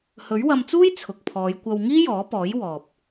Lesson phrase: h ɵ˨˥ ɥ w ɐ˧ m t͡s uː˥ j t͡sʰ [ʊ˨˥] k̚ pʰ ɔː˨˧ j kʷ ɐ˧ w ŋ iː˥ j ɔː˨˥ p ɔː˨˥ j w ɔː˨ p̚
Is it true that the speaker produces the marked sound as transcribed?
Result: no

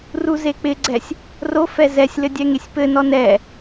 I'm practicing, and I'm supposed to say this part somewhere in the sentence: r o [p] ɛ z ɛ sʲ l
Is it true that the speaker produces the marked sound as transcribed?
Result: no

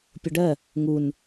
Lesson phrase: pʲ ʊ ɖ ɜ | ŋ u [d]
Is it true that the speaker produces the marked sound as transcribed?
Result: no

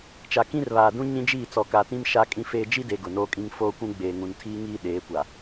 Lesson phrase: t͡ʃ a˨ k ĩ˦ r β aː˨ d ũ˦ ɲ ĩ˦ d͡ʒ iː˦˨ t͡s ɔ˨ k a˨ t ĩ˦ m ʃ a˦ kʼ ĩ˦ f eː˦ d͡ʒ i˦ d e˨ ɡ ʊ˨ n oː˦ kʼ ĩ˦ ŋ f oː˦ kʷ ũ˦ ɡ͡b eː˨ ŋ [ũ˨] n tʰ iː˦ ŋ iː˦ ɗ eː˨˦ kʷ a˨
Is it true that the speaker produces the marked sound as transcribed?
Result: yes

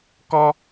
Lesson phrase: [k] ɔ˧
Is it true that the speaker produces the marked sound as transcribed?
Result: yes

